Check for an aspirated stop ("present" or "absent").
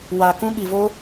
absent